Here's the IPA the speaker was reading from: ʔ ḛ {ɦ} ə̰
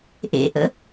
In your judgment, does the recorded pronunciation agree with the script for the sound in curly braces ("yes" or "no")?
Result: no